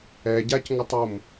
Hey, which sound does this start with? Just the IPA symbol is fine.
ɛ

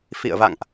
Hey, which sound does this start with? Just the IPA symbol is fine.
f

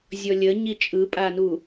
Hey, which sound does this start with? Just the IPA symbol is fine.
zʲ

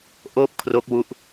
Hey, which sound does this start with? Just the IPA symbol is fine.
ʔ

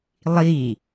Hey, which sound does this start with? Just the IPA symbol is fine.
lˠ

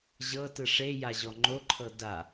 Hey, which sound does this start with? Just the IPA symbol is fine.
ʑ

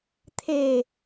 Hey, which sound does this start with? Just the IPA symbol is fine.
t̪ʰ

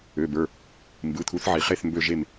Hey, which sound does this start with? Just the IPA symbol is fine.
ø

